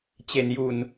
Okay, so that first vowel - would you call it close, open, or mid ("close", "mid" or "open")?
mid